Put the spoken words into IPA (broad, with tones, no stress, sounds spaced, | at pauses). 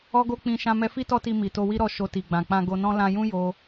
ɔ˦ ɡ o˦ k͡p ĩ˧ ʃ ã˧ m ɛ˧ f i˦ t ɔ˦ t i˧ m i˨ t o˧ w i˦ ɾ ɔ˦˨ ʃ o˧ t i˨ ɡ͡b ã˨ k͡p ã˧ ɡ o˧ n ɔ̃˦ l ã˧ j ũ˦ j o˦